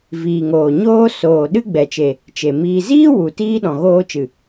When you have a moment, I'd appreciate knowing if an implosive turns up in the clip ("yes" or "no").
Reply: yes